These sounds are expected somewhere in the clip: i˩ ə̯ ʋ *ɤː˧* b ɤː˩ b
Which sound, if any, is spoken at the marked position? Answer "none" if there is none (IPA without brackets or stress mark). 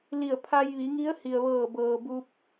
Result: ɤː˧˩